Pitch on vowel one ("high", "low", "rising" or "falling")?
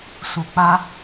low